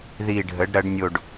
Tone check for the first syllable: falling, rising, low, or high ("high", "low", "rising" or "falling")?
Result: low